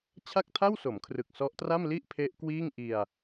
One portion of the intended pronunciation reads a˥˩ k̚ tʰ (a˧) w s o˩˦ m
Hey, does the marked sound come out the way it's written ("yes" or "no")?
no